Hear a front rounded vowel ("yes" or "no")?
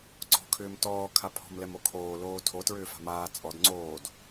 yes